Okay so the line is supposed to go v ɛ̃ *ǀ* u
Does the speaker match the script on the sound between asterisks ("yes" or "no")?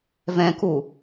no